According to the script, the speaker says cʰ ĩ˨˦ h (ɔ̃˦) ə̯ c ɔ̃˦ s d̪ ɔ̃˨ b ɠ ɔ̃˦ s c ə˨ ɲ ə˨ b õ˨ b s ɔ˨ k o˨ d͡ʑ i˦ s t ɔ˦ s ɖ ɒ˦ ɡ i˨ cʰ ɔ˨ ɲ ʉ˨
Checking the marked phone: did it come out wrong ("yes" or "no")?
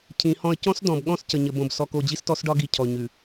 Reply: no